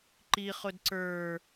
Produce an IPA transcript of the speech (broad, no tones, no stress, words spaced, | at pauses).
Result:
ǃiχʊd ǀə˞